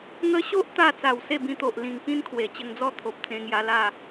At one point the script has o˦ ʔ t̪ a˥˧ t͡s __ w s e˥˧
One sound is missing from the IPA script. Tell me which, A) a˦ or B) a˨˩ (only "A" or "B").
B